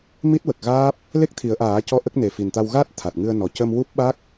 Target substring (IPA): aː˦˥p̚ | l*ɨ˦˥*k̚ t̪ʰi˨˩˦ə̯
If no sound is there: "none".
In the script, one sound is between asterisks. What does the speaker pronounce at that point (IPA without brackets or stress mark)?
e˦˥